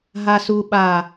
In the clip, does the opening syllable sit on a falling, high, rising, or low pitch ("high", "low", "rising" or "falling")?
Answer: low